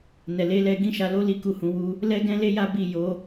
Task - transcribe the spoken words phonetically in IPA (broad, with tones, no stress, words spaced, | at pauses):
nɛ˨le˨˦lɛ˧ ɡĩ˦ʃa˧lo˦ li˦ku˦˨hũ˧wu˦ | lɛ˦ɡɛ̃˦le˦ ja˦ bi˦˨ jo˨˦